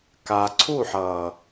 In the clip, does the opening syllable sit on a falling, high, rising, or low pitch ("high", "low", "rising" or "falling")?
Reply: low